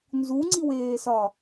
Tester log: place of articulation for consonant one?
alveolar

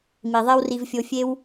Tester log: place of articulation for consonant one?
labial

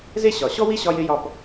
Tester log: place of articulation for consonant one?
alveolar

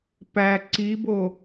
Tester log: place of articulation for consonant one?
labial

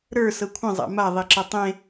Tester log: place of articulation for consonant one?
alveolar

